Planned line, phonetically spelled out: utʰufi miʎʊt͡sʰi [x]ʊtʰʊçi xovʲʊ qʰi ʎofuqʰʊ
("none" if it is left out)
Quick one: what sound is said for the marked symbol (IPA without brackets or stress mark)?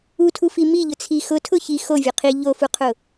x